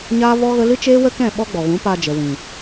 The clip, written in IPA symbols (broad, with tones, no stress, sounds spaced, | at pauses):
ɲ aː˦ v ɔ˦ ɣ ə˦ l ɨ˦ t͡ʃ eː˦ w ə˦ k ɛ̃˦˨ ɓ ɔ˦ ɡ͡b ɔ˨ ɣ ũ˨˦ p aː˧ d͡ʒ ə˨ w ĩ˨